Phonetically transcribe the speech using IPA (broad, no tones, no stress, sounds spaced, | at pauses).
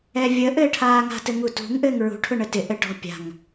ɛ vʲ ə ʔ ɘː ʈʰ aː ŋ a̤ t ɘ ŋ u t ṳ ŋ ʔ ɘː ŋ ɹ ṳ ʈʰ ʊ ɳ ə t ɪ ʔ ɘ ʈ ɔ̤ pʲ a̤ ŋ